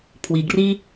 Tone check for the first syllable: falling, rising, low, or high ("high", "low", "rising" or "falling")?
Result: low